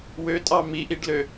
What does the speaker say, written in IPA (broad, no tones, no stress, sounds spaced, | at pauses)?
w ø tʼ ɑ m i ʔ i ɖ l ø